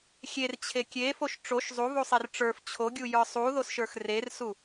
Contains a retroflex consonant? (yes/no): yes